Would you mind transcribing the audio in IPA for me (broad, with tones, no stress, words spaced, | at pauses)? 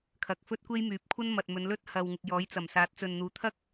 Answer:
kʰɐ˨˥k̚fɵ˥t̚ kʷe˥jmyː˨˥p̚ kʷʰɐ˥nmɐ˨t̚ mɵ˨˧n lɵ˥t̚hɐ˨wŋɪ˨k̚ jɔː˨˥jt͡sɐ˨˩m saː˨˥t̚t͡sɵ˨nn̪uː˨˥ t̪ʰɐ˥k̚